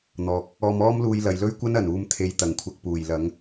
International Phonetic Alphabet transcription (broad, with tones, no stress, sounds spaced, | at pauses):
n̪ ɔː˨ k̚ | ɔː˧ m ɔː˥ m l uː˧ j l ɐ˨ j l ɵ˥ ɥ kʷ ɐ˥ n ɐ˨˩ n uː˧ m t̪ʰ e˧ j t̪ ɐ˨˩ ŋ kʷʰ ɐ˧ k̚ p uː˨˩ j l ɐ˨˥ ŋ